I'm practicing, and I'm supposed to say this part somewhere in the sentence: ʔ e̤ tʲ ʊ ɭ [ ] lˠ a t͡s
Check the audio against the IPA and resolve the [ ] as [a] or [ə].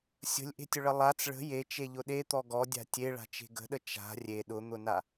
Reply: ə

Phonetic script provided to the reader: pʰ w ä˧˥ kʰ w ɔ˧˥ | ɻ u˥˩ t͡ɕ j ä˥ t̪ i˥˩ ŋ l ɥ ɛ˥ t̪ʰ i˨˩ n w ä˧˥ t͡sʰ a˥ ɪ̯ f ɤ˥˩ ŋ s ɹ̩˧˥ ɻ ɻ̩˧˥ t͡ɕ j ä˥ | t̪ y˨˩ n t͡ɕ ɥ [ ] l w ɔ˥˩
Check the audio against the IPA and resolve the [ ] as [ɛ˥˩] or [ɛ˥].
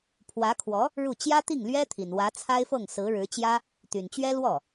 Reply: ɛ˥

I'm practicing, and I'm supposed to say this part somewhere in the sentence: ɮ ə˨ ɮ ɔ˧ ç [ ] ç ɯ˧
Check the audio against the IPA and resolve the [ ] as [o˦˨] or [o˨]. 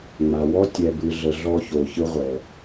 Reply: o˨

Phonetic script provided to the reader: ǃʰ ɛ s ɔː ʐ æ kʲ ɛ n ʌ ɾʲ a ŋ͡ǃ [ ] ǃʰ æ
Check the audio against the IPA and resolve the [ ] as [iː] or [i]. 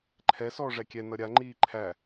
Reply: iː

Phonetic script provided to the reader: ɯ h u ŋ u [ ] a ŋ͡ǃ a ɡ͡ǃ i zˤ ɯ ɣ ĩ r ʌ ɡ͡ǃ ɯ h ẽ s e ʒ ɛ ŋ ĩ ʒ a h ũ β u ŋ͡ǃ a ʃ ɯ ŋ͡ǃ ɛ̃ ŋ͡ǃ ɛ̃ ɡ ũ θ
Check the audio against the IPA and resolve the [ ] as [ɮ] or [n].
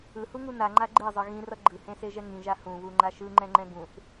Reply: n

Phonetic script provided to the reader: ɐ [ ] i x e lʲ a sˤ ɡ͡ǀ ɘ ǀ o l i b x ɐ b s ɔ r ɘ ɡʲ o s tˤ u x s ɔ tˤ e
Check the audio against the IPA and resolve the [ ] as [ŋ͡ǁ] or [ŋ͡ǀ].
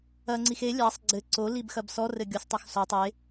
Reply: ŋ͡ǀ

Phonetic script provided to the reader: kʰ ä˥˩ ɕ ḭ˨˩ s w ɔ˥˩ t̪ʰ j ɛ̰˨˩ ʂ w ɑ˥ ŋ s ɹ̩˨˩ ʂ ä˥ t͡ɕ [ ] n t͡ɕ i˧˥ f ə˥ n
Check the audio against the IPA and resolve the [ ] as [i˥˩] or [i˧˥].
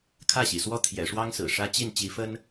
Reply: i˥˩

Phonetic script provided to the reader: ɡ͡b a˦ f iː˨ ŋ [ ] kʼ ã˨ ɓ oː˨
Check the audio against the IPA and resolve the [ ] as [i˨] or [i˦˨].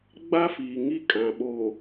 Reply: i˦˨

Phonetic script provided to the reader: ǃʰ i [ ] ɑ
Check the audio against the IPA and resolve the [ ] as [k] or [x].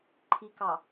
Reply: k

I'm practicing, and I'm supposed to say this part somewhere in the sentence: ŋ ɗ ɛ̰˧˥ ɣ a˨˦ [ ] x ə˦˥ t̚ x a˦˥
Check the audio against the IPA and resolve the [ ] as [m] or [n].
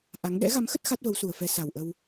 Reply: m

